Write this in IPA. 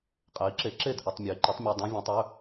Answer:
qʼ e˨˥ i̯ ǁ e˨˥ ǁ e˥˩ d ʔ ɵ˧˥˧ tˤ mʲ ɵ˨˥ i̯ ǃ ɔ˨˥ tˤ mʲ œ˧˥˧ dˤ œ̃˦˥ vʲ ɔ̃˨˥ tˤ ɵ˧˥˧

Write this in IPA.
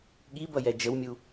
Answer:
ɠ i b ʌ j ɛ d͡ʒ ə w mʲ u

